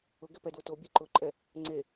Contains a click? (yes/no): yes